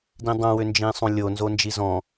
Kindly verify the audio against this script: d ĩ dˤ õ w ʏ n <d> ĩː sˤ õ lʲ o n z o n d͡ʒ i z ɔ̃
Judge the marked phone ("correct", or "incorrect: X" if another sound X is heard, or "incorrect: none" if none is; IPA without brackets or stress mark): incorrect: d͡ʒ